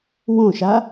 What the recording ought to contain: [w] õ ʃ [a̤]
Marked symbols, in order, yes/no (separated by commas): yes, no